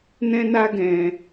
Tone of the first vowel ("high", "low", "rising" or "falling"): high